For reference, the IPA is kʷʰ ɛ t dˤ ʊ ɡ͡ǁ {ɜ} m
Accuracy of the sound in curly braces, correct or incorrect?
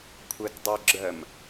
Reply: correct